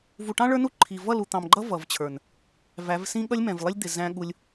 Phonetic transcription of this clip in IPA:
v u˨ ʈ ɑ̃˦ ɭ ə˞˦ n u˦ ǃʰ i˨ v ʌ˦˨ l u˨ t̪ ɑ̃˨ m ɡ͡ǃ ʌ˦ v ʌ˨ v t͡ɕʰ ə˞˨ n | v æ˨˦ v s ĩ˦ ɠ ʌ˦ lʲ m ɛ̃˨ v lˠ ɪ˦ lʲ d̪ ɪ˨ z æ̃˦ ɠ u˦ lʲ

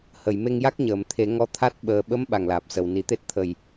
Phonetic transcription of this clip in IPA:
h ə˨˩˨ j m e˧ ŋ j a˦˥ k̚ ɲ əː˨˩˨ m t̪ʰ e˨˩˦ ŋ ɔ˧ t̪ʰ a˦˥ t̚ ɓ əː˨˩ ɓ ə˧˥ m ɓ a˨˩ ŋ l aː˨˩ p̚ s ə˨˩ w n i˨˩˦ t̪ e˦˥ t̚ t̪ʰ ə˨˩ j

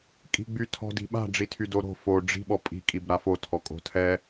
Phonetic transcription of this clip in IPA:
kʼ i̤ ɡ͡b y tʰ ɔ̤ d i̤ ɓ a̤ ɖ͡ʐ i tʰ y d o ɾ o̤ f o ɖ͡ʐ i̤ ɓ ɔ pʼ i̤ kʼ i b ɾ a f o tʰ ɔ kʼ o̤ tʰ ɛ

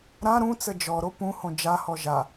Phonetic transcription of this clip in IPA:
ɾ ã ɾ ũ t͡s ə d͡ʒ ɔ ɾ o p ũ h õ d͡ʒ a h ɔ ʒ a

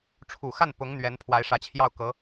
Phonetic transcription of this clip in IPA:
ʈ͡ʂʰ u˨˩ x a˥˩ n p ʊ˧˥ ŋ n̪ ɥ ɛ˧˥ n pʰ w a˧˥ ɪ̯ ʂ ä˧˥ t͡ɕʰ j ɑ˥˩ ʊ̯ k ɤ˧˥

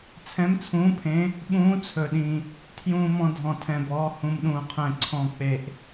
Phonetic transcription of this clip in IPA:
t͡sʰ ɛ̃˧˥ m t͡sʰ ũː˧˥ pʰ ẽ˧˥ | ɓ ũː˧˥ t͡sʰ ɵ˧ ɗ ĩ˧ | tʰ j ũː˧ m ɔ̃˧ dʱ ɔ̃˧ tʰ ɛ̃˧ b ɔː˧˥ h ũ˧ m ɗ ũː˧ qʰ ɛ̃˧ ǀʰ ɔ̃˧ k͡p e˧ ʔ

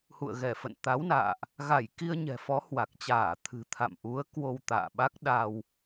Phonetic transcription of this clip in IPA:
h ṵ˧˨ ə̯ ɣ ɛ˧˩ f ə̰˧˨ n t̪ a˨˦ w n a̰ː˧˨ ʔ | ɣ a˧˩ j k i˧ ə̯ ɲ ɛ̤˨˩ f ɔ˨˦ h w a˨˩ k̚ t͡ɕ aː˧˩ t̪ʰ ɨ̤˨˩ t̪ʰ a̰˧˨ m ʔ u˨˦ ə̯ k w o˧ w t̪ a̰ː˧˨ ɓ a˦˥ k̚ ɗ a˧ w

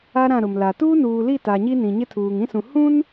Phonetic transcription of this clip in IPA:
a˦ ɾ ã˦˨ ɾ ʊ˨ m l a˨ t uː˦ n uː˨ l i˦˨ t a˨ ɲ i˦ n ĩ˨ ɲ ɪ˦ tʰ uː˨ ŋ ĩ˦ s ũ˨ h ũ˦ n

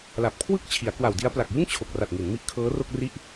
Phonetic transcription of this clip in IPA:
l a˨˩ p̚ kʰ w ɯ˥˩ k̚ t͡ɕʰ i˩˦ a̯ k w a˨˩ w d i˦˥ a̯ p l a˨˩ k̚ j ɯ˥˩ ŋ t͡ɕʰ o˨˩ k̚ r a˨˩ t̚ ŋ i˩˦ n m i˦˥ ʔ kʰ ɤː˦˥ r o˥˩ k̚ r i˥˩ ʔ

